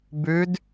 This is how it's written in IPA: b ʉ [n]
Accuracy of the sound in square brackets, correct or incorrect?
incorrect